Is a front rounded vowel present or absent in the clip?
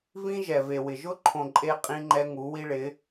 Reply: absent